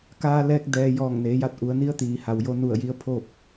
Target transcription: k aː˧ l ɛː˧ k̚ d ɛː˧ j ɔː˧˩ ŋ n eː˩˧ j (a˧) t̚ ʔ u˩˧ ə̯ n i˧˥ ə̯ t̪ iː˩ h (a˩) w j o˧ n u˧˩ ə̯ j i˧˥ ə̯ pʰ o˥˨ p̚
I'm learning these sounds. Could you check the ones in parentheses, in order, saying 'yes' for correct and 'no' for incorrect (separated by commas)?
yes, yes